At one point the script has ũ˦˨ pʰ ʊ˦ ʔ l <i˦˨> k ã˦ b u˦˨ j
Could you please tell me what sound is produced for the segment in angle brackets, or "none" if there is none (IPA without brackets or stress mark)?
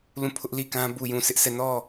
i˦˨